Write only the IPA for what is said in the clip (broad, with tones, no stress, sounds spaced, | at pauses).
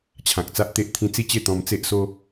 t͡ɕʰ ã˨ k̚ t͡s a˦ ʔ t̪ e˦ ʔ t̪ʰ ĩ˦ t͡s i˥˧ t͡ɕ e˥˧ t̪ ɔ̃˧ m t͡s e˦ ʔ s o˦